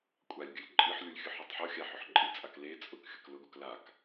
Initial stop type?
ejective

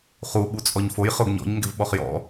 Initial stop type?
implosive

